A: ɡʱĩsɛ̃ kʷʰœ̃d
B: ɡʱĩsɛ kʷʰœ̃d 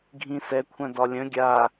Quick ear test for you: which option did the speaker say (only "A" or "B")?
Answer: B